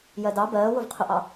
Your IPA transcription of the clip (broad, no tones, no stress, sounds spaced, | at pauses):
j ɜ d ɑ b ɜː w ʊ v qʰ ʊ ʔ ɑ